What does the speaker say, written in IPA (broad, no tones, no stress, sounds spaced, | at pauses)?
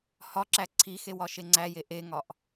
h ɒ ǁ æ ǀʰ i x e w ɒ ʃ e ŋ͡ǀ æ j e ʔ e ŋ ɒ ʔ